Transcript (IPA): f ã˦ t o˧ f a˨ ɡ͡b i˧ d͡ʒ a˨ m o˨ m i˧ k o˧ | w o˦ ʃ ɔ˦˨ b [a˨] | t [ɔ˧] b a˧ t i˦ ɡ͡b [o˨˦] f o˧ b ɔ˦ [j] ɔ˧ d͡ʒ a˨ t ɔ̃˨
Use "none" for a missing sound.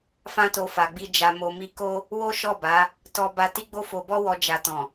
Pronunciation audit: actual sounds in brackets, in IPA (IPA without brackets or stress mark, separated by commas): a˨˦, ɔ˧, o˦, w